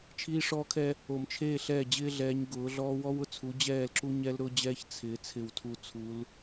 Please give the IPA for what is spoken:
t͡ʃʰ iː˦ ʂ ɔː˦ kʰ ɛː˦ | o˨ m t͡ʃʰ eː˦˨ ɬ ɛː˦˨ d͡ʑ ɪː˦ ɮ ɛː˨˦ ɲ ɡ ʊː˨˦ ɮ ɔː˦ w ɔ˦ w ʊ˨ t͡sʰ u˨˦ d͡ʑ ɛː˦˨ l ǁ u˦ ɲ ɛ˦ l ɾ ʊː˦ d͡ʑ ɛː˦ ç t͡sʰ ɪː˨ t͡sʰ ɪ˨ w tʰ u˨ t͡sʰ u˨˦ l

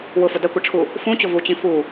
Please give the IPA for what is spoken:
w ʊ f ʊ d ɐ kʷ ɐ ʈ͡ʂʰ u | f ũ t͡ɕ ʊ v u t͡ɕ ĩ f u

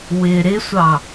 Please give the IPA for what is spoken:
w ɪ ɾ ɪ sʷ ɑ

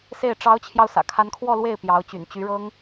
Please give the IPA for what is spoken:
s e˥˩ ɪ̯ ʈ͡ʂ ɑ˧˥ ʊ̯ t͡ɕʰ j ɑ˧ ʊ̯ s ä̰˨˩ kʰ a˧˥ n kʰ w ɔ˥˧ l w e˥˩ ɪ̯ p j ɑ˧˥ ʊ̯ t͡ɕ y̰˨˩ n t͡ɕ y˧˥ ɻ ɤ˥ ŋ

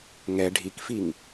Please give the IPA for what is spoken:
ŋ ɛ ɖʱ i k f i ŋ

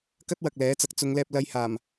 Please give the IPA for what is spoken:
k ɐ˥ t̚ w ɐ˨ k̚ l ɛː˨˥ t͡s ɐ˨˥ k̚ t͡s ʊ˨˧ ŋ l ɛː˧ p̚ l ɐ˧ j h aː˨˩ m

